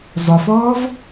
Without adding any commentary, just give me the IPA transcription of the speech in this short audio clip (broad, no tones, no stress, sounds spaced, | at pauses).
zˤ ʊ f ɔː v